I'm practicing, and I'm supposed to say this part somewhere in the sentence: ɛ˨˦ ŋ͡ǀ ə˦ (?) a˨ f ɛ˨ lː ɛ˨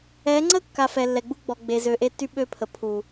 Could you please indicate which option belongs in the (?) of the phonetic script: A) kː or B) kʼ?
A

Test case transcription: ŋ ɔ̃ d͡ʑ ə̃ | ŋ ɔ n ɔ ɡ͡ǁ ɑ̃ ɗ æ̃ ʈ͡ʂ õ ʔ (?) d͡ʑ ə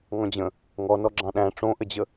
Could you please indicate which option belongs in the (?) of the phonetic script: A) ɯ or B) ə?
B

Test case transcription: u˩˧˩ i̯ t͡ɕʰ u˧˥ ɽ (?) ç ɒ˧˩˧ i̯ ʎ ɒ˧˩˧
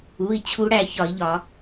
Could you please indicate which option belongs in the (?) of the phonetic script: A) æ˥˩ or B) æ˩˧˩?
A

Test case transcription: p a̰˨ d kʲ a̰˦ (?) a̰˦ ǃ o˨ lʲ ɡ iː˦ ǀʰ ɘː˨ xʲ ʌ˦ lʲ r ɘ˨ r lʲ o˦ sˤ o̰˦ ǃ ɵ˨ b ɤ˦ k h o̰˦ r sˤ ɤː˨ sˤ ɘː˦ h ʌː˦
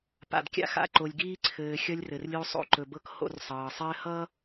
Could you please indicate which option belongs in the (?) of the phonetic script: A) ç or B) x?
B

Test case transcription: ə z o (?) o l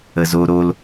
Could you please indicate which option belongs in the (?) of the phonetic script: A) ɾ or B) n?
A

